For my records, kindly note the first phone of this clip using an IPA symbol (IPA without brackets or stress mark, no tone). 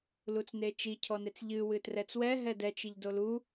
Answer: l